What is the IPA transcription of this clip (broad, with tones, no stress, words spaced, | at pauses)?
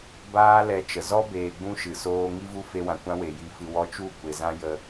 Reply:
baː˦ lɛ˧t͡ʃə˨ zɔ˦beː˨ɡ͡bũ˧ ʃɨ˨soː˦ ŋi˦vu˦fe˧wã˨ kʷã˦we˨ji˧ fɨ˧wɔ˦ t͡ʃu˦˨kʷe˨ zã˦jə˧